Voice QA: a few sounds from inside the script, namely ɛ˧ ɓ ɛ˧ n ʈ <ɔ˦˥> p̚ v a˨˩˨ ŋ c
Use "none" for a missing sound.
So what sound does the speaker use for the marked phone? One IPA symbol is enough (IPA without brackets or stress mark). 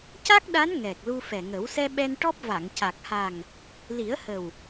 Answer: ɔ˦˥